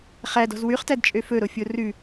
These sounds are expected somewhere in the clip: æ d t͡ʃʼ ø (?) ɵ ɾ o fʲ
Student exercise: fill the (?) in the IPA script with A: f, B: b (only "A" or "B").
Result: A